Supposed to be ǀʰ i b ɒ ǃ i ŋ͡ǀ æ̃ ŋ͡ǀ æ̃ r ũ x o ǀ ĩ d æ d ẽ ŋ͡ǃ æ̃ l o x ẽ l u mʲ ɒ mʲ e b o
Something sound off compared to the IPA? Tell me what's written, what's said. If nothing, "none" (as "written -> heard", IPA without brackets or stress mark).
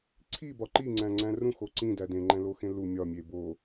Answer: none